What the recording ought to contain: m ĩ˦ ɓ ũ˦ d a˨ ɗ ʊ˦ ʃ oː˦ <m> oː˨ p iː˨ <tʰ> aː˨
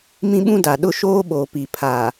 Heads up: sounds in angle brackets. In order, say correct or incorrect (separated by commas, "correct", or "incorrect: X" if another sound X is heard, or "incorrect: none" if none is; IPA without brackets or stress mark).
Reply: incorrect: ɓ, incorrect: pʰ